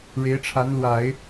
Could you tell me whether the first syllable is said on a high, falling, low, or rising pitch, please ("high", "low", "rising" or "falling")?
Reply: rising